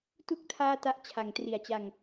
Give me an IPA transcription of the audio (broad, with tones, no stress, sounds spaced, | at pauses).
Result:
t u˥˩ k̚ tʰ aː˥˩ t a˥˩ ʔ t͡ɕʰ a˩˦ ŋ t r i˩˦ a̯ t͡ɕ a˧ ŋ